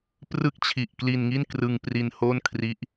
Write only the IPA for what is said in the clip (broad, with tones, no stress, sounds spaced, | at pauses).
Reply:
p r ɯ˥˩ k̚ t͡ɕʰ i˨˩ ʔ k l i˧ n ŋ i˥˩ n k r ɯ˧ ŋ p r i˧ n h oː˥˩ n kʰ r i˦˥ ʔ